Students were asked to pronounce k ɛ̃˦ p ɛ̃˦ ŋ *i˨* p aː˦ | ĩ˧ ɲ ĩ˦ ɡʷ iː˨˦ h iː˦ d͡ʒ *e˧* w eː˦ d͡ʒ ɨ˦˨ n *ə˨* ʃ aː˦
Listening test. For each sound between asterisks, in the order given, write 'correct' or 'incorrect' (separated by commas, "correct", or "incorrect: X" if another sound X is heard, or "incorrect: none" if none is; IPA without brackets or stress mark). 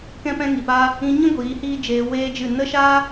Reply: correct, incorrect: eː˧, incorrect: ə˦